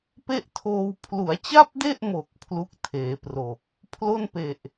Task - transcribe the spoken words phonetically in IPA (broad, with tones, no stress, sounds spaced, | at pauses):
p e˥˩ ʔ tʰ oː˧ w pʰ l u˩˦ a̯ t͡ɕ a˥˩ p̚ d e˥˩ ʔ m o˨˩ k̚ pʰ l u˥˩ k̚ tʰ eː˩˦ p r o˨˩ k̚ | pʰ l o˥˩ n p e˨˩ ʔ